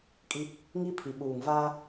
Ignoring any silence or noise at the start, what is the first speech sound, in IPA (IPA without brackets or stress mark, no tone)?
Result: kʼ